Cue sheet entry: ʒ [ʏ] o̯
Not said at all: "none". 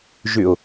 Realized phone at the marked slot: ʏ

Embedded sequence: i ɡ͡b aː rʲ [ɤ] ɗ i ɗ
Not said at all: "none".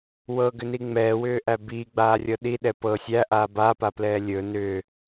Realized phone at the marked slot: ɤ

